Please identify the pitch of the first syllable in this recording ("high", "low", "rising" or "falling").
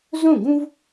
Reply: falling